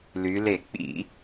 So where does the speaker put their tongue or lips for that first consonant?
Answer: tongue tip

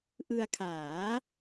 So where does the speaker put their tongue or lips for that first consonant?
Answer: throat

